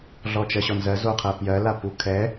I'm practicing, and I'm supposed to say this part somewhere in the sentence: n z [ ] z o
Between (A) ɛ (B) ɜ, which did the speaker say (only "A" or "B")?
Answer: B